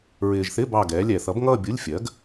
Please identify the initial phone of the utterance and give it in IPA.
ɹ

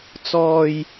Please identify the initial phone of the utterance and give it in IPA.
t͡s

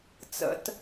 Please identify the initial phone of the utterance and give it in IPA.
t͡s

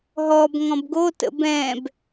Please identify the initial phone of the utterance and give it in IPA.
ɦ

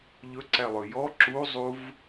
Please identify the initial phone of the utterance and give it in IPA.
ʎ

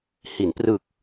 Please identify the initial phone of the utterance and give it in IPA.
h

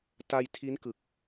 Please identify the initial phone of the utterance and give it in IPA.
t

